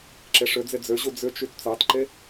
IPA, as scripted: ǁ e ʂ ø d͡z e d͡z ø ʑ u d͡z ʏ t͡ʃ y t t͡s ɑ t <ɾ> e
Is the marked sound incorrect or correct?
incorrect